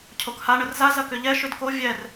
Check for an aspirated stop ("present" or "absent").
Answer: present